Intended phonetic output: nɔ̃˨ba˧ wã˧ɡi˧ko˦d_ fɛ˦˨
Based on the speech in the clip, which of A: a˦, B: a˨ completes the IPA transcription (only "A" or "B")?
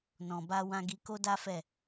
A